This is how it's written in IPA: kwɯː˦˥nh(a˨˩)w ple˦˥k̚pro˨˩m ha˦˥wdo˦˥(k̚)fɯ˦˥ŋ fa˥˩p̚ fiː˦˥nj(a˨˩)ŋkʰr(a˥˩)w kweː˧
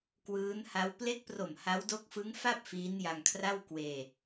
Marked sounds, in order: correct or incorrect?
incorrect: a˦˥, correct, incorrect: a˧, correct

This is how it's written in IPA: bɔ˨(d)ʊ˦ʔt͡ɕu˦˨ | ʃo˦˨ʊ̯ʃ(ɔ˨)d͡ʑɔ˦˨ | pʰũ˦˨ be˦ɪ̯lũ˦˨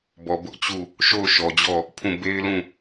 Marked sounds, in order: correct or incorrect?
incorrect: b, correct

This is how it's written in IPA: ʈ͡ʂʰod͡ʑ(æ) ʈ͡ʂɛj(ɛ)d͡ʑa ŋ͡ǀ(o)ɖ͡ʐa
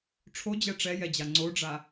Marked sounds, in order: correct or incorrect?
incorrect: ɛ, correct, correct

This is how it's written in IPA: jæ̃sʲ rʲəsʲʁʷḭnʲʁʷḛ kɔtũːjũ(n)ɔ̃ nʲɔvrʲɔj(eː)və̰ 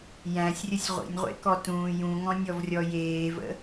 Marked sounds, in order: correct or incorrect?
incorrect: ŋ, correct

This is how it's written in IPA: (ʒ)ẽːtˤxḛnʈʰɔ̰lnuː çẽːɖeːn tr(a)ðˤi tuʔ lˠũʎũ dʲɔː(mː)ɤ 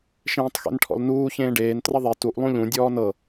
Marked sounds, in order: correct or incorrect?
incorrect: ʃ, incorrect: ʌ, incorrect: n

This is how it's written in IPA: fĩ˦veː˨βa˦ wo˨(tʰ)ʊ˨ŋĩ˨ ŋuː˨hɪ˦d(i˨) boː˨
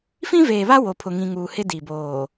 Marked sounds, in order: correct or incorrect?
incorrect: pʰ, correct

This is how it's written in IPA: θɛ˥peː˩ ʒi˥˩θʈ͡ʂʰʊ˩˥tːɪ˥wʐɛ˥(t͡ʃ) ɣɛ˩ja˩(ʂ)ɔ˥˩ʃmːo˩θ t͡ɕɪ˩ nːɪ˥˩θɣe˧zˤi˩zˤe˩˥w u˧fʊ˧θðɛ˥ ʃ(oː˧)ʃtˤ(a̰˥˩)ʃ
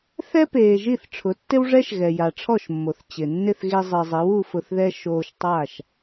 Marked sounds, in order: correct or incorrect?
incorrect: ʃ, incorrect: ʈ͡ʂʰ, correct, incorrect: a˥˩

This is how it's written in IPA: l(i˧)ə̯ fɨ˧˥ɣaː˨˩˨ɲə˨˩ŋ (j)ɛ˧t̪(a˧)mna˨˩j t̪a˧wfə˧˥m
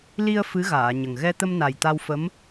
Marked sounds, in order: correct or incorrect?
correct, incorrect: ɣ, incorrect: ə˧

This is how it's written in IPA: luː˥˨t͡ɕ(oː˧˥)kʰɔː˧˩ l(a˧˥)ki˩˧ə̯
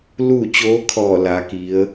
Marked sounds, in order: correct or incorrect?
correct, incorrect: a˩˧

